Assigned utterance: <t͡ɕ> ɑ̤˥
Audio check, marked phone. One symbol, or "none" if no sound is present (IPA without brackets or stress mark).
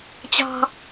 t͡ɕ